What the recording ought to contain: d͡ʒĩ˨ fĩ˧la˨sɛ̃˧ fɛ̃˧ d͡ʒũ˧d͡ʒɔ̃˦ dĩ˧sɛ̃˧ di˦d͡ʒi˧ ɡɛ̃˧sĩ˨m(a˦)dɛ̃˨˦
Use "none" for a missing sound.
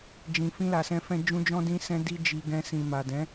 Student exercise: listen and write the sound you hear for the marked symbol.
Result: a˨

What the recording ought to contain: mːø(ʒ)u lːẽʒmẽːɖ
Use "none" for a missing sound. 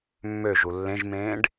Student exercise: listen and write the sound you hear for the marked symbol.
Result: ʒ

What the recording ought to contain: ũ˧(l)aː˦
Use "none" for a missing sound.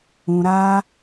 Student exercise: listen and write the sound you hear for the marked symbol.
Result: ɾ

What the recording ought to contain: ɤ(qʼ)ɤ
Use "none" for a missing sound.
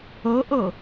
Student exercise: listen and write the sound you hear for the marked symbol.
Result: ʔ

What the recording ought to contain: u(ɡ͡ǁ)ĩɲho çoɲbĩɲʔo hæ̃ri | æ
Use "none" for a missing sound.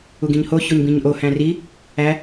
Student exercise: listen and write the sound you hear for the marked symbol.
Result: ɡ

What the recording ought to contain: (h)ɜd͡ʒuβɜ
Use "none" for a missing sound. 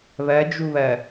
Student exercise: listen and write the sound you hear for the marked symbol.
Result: β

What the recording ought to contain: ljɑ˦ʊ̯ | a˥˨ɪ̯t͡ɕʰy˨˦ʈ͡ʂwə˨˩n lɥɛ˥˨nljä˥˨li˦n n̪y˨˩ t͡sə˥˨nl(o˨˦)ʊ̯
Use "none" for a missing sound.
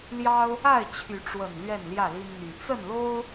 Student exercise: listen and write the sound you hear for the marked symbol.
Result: o˦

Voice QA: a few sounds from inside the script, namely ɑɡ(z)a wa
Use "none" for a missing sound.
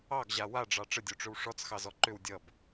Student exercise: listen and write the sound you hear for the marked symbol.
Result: ʑ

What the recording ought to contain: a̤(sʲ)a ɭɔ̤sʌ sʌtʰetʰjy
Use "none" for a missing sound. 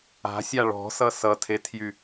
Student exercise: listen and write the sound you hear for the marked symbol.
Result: sʲ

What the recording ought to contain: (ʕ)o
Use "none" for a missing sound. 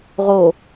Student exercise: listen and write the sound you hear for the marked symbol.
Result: ʁ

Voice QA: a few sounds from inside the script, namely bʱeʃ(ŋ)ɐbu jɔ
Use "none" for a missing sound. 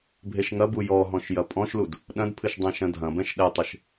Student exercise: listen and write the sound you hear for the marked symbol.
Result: ŋ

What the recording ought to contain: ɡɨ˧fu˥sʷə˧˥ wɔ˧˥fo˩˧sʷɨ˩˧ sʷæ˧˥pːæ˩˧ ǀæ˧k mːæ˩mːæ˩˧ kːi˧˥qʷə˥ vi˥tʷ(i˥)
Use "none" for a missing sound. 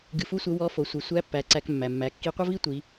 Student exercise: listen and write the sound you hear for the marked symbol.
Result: i˩˧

